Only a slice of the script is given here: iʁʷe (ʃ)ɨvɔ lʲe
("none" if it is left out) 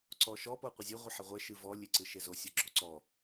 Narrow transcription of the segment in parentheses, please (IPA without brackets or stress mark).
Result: ʃ